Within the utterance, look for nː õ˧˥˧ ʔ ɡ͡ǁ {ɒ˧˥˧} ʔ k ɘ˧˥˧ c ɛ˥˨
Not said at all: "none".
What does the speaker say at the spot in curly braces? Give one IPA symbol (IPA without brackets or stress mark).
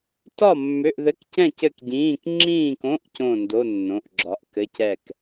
ɒ˧˥˧